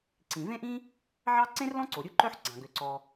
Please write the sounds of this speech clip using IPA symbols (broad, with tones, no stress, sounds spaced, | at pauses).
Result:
ǀ ĩ˩ v ẽ˥ ʔ ĩ˥ | ʕ ɑ˥ ǀ ẽ˥ r l ɔ̃˥ ǀ o˩ ɾʲ u˥ ǃ œ˥ ħ ɡ͡ǀ ɑ̃˩ ɡ ø˩ ǀ ɔ˩